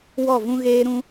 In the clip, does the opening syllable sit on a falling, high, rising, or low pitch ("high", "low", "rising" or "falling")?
falling